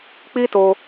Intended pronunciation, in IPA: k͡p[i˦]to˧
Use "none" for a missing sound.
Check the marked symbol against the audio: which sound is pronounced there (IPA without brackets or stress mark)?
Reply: i˦